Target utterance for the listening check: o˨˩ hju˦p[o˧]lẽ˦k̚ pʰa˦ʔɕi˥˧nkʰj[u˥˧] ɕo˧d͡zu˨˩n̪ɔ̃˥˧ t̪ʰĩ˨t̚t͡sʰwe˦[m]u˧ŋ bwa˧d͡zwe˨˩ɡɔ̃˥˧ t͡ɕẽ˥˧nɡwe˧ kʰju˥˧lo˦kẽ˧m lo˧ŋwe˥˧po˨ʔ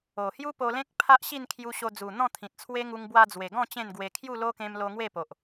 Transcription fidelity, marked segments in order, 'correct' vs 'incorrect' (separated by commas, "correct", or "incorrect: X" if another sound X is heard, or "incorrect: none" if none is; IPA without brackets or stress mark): correct, incorrect: u˧, incorrect: ŋ